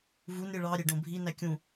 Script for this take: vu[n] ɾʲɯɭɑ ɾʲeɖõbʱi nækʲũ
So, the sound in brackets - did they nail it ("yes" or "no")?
yes